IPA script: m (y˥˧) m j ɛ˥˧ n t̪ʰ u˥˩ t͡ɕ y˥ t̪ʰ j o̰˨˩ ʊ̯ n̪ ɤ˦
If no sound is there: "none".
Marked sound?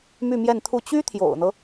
y˥˧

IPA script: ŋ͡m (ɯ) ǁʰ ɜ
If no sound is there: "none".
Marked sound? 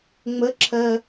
ə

